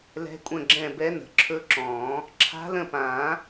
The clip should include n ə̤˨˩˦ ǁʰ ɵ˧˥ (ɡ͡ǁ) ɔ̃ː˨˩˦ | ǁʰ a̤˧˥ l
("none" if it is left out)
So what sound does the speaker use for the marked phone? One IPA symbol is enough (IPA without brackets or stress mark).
ǁ